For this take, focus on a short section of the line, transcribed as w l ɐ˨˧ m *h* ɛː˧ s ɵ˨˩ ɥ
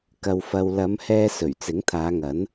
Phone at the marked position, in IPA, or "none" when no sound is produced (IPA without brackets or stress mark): h